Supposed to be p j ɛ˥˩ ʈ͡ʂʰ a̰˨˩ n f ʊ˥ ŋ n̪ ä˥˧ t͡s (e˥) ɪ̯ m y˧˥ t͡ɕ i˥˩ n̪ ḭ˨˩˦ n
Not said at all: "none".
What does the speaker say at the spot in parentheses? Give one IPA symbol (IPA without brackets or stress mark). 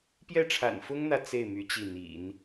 e˥˩